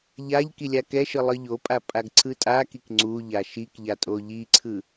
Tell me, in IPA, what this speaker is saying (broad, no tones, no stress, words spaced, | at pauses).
ʎaʎ kilʲakɛʃɯ lˠɯʎopʼa pʼaɡǀʰɯtʼakik ŋ͡ǀu ʎaʃikʎa tʼoʎiǀʰɯ